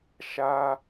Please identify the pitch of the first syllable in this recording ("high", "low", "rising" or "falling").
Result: high